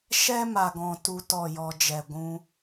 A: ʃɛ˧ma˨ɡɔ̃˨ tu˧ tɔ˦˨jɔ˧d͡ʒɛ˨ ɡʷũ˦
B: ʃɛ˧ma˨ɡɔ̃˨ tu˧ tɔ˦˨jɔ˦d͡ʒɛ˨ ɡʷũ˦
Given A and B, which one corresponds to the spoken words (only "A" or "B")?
A